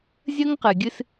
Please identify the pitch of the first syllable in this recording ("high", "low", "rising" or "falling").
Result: high